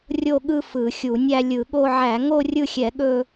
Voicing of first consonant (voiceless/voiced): voiced